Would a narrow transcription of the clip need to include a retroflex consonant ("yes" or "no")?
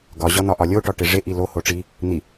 yes